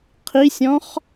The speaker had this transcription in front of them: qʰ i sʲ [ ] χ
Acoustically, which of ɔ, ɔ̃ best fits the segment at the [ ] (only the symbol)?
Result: ɔ̃